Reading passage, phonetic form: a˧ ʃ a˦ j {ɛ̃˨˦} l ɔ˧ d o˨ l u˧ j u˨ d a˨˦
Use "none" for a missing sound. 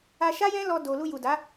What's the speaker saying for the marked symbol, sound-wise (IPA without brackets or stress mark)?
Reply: ɛ̃˦